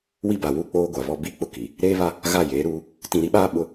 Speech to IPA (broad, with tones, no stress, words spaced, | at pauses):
wi˦ba˨ wu˦˨ k͡poː˦ɡʷa˨βɔ˦ bi˦˨k͡pʊ˦ ki˨ | ɾeː˦βa˦ | ɣa˦˨jeː˨˦ɾuː˦ | tĩ˨ɾi˦ɓaː˦ ɓʊ˦